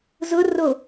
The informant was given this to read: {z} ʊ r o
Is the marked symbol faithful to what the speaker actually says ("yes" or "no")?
yes